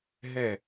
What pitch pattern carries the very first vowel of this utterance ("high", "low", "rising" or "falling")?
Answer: falling